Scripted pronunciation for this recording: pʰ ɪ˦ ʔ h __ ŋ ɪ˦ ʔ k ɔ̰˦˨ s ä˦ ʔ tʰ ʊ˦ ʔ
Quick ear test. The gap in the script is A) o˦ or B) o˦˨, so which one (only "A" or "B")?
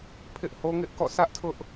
A